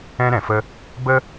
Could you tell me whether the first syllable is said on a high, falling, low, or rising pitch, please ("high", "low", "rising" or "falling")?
high